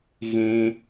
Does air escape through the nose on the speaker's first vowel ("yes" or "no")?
yes